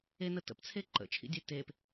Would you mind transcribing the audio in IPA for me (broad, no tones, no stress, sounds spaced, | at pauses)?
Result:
e n ə t ə̰ p t͡sʰ e ǃ ə̰ t͡ʃʰ ḭ dʲ e t e p